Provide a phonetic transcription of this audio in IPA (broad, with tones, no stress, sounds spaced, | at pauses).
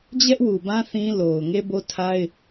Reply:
d͡ʑ ɛ˦ ʔ w u˨ b ã˦ θ ĩ˦ l o˨ ʊ̯ ŋ e˦ b o˦ tʰ a˦ ɪ̯